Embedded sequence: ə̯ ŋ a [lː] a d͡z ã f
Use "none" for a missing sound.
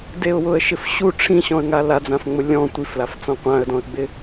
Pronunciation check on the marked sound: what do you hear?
l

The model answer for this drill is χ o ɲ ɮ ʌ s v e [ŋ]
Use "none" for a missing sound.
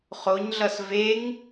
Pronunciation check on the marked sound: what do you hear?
ŋ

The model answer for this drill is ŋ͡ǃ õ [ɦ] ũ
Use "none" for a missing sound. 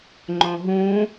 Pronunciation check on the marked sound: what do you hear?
ɦ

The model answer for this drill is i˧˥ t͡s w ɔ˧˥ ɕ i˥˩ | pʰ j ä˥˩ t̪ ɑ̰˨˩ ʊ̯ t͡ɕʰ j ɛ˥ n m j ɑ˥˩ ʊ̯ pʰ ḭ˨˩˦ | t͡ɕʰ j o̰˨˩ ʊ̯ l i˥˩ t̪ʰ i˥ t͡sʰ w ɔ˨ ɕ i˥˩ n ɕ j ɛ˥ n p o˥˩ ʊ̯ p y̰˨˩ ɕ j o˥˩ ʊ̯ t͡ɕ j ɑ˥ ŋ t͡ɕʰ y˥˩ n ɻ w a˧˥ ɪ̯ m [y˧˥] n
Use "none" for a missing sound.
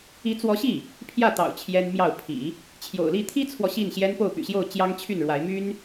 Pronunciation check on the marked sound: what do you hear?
y˥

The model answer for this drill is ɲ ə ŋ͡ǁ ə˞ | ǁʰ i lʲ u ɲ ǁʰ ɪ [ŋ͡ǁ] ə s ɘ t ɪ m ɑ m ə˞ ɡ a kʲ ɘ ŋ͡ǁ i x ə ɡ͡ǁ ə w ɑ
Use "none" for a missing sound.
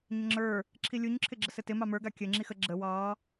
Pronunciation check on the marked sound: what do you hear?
ɡ͡ǁ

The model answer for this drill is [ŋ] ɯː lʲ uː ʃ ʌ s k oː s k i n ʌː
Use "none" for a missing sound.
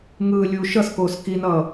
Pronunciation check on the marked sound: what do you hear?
ŋ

